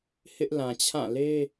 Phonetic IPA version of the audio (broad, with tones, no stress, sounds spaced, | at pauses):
h ɪ˦ ʔ l ã˨ t͡ɕʰ ã˦˨ l e˦